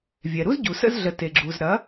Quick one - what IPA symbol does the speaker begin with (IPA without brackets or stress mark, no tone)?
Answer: vʲ